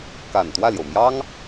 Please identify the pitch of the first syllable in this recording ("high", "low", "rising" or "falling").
low